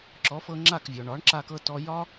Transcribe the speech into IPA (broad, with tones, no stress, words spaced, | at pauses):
ǁɔ˩˥fɤ˧ŋ͡ǁa˥˩kvʲɔ˩ ɳɒ˩˥ɳǁa˧kɤ˧ tɔ˧jɒ˥